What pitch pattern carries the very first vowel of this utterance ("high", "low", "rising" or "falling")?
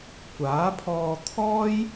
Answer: rising